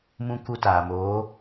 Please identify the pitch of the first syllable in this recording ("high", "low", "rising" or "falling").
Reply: high